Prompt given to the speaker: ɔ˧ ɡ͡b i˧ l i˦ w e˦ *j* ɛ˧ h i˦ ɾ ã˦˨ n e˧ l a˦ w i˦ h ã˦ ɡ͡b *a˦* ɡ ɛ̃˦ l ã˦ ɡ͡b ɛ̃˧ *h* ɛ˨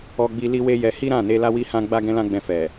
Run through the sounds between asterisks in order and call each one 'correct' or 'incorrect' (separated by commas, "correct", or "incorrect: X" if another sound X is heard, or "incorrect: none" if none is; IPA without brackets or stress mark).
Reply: correct, correct, incorrect: f